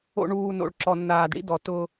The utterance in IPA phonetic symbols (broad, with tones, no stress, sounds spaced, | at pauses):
o̰˨ ɳ uː˨ n o̰˨ ɭ ǁ ɔ˨ nː aː˨ d ɽ ḭ˦ d ɔ˨ t ʊ˦